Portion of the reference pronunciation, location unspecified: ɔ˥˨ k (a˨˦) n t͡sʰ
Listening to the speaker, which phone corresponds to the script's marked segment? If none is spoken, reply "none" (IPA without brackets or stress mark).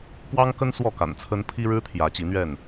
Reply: a̰˨˩